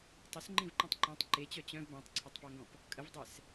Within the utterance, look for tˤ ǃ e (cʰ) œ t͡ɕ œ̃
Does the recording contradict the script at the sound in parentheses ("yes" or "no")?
yes